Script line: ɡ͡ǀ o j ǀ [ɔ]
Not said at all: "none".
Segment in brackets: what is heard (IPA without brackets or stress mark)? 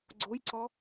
ɔ